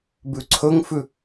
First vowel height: high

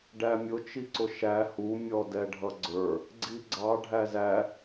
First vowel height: low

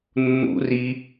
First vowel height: high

